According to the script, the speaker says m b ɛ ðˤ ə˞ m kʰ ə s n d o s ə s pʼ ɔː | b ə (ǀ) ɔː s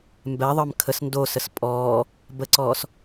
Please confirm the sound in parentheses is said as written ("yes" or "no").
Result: yes